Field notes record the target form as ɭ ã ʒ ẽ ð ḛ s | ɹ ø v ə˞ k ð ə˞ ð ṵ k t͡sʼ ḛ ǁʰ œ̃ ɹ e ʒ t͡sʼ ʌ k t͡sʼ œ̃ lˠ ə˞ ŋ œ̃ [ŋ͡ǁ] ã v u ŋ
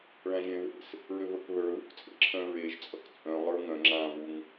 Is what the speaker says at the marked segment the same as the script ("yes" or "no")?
yes